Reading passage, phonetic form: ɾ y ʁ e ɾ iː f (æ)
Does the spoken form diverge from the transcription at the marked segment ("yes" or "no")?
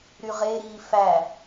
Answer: no